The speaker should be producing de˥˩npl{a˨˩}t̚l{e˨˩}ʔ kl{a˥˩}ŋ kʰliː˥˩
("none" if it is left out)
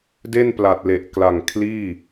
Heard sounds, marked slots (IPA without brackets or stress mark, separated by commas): a˨˩, e˨˩, a˨˩